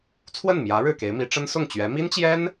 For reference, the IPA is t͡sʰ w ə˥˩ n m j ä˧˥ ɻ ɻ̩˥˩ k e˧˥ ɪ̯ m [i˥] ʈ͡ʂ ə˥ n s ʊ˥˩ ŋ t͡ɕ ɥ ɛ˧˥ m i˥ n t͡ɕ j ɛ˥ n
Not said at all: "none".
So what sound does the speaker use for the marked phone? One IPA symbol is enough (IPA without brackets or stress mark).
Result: i˧˥